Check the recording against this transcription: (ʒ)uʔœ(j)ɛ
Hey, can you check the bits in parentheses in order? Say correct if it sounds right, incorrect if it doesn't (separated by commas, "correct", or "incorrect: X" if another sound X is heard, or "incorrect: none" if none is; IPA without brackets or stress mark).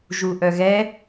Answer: correct, incorrect: ɣ